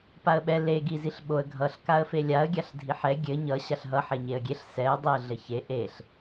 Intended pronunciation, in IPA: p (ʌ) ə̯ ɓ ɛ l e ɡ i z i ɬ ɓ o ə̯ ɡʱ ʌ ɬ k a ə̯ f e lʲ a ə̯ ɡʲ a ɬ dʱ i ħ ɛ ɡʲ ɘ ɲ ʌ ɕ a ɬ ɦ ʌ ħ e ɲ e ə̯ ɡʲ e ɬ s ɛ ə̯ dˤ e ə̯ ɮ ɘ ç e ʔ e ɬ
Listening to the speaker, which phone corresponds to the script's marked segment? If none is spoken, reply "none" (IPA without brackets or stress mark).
a